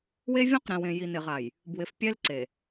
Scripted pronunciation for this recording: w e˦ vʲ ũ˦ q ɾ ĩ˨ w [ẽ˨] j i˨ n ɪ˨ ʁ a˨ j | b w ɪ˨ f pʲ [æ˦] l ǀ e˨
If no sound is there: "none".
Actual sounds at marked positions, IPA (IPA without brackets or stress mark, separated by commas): ẽ˨, ɛ˦